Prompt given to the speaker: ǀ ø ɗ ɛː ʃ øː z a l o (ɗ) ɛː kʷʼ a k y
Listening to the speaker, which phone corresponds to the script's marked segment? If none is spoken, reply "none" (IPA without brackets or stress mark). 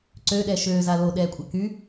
ɗ